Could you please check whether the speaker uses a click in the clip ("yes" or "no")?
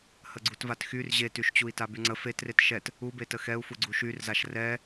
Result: yes